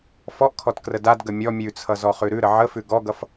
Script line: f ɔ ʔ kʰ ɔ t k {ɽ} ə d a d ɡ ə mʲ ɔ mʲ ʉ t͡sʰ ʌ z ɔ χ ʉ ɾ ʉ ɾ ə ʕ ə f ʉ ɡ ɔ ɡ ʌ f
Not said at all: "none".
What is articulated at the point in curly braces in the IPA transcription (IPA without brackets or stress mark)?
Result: r